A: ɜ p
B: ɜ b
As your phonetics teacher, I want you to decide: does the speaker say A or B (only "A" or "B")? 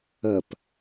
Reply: A